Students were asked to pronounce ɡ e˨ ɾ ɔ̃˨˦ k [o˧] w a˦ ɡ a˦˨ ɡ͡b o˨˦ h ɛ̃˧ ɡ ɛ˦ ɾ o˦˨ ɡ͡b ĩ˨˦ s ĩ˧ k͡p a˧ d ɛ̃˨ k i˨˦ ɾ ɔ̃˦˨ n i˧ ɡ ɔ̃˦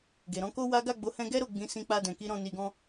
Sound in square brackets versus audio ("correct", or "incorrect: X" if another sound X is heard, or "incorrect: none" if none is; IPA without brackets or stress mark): incorrect: o˦